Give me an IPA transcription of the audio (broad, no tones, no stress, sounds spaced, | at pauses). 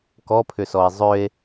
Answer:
k ɔ pʰ ʏ s ɔ e̯ zˤ ø e̯